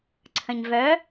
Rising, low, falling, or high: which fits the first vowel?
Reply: low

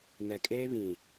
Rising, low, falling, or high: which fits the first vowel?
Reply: low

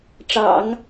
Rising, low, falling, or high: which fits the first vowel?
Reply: low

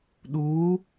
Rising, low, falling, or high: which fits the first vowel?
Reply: rising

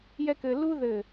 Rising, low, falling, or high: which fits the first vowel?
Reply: high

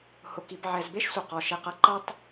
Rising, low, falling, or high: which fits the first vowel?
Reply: low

